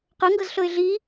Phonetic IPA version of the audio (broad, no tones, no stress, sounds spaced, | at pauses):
q ɤ ŋ ɡ ɤ z ɬ ɤ ɪ̯ ɮ i